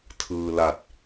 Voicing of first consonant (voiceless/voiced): voiceless